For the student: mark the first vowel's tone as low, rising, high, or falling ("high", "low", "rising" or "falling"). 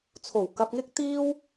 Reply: low